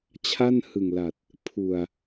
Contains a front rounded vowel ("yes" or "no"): no